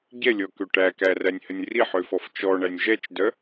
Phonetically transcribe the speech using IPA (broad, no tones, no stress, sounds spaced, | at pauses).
ɟ ɛ lʲ ɔ k ø ʈ æ k æ r æ nʲ h ə nʲ r i ħ ø f ɔ f t͡ʃ ɔ ɳ æ nʲ ʒ ɛ t͡ʃ d œ